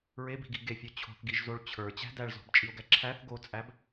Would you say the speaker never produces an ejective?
no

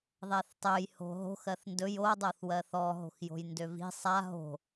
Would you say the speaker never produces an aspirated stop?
yes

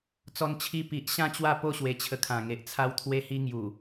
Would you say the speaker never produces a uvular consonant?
yes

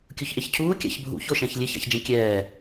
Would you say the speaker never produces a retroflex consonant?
yes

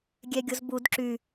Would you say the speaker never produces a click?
no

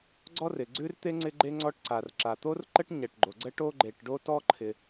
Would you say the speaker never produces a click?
no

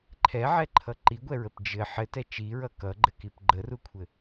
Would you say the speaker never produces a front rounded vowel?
yes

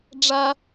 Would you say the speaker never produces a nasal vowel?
yes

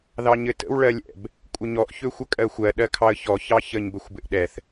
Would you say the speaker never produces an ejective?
no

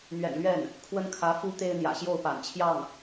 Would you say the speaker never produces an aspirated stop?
no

